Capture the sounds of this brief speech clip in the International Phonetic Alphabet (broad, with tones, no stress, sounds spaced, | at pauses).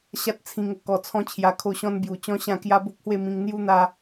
ɕ a˦ t̚ t͡sʰ ĩ˧ ŋ ə˧ k ɔ˧ t͡sʰ ɔ̃˦ t͡ɕʰ j a˧ kʰ o˥˧ ɕ ɔ̃˦ n b j u˨˩ t͡ɕ ɔ̃˦ ɕ ã˥˧ k j a˦ b o˦ k̚ h w e˥˧ m ĩ˧ ŋ n̪ j u˦ n̪ a˧